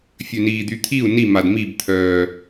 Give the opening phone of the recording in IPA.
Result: fʲ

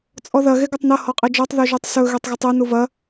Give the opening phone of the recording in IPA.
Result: t͡sʼ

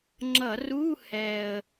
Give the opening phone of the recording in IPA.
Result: ŋ͡ǁ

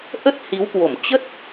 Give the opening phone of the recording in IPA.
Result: ʔ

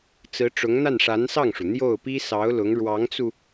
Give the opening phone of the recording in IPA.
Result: t͡s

